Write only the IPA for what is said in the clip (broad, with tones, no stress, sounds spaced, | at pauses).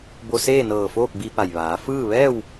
b o˧ s eː˥˨ n ɤː˧˩ f oː˥˨ k̚ b i˧ p a˩ j ʋ aː˩˧ f ɯː˥˨ ʋ ɛː˥˨ w